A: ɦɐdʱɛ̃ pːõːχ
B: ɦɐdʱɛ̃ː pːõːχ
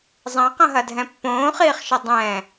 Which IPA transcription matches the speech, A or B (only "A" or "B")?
A